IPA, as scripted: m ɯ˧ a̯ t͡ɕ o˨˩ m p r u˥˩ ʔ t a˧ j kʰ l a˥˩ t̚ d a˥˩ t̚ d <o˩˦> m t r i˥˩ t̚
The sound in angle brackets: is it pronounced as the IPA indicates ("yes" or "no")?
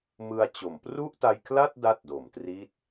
yes